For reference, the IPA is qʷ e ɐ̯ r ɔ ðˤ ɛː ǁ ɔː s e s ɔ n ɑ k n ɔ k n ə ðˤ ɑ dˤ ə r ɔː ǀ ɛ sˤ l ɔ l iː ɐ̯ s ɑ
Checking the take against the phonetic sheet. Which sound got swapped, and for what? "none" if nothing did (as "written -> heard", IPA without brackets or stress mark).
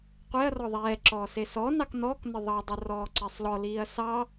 none